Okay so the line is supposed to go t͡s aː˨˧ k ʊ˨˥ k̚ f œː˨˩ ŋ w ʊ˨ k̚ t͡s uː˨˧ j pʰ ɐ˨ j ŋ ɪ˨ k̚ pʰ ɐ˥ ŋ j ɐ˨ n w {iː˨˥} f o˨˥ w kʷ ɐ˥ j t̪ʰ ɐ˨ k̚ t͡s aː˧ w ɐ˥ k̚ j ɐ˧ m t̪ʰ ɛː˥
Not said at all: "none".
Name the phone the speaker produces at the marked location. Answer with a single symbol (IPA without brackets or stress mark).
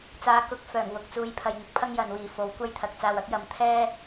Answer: iː˨